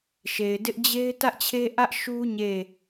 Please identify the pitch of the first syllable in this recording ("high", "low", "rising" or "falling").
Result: low